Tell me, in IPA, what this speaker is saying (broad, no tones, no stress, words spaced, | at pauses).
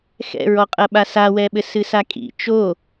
xɛ̰ɹɔqʼɐ ɓasawɛɓɘ sɨsakʼḭ t͡ʃo